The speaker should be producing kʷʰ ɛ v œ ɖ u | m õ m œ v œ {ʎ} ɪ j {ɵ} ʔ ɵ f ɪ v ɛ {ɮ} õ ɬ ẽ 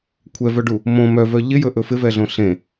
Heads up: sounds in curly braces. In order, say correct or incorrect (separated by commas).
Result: correct, correct, correct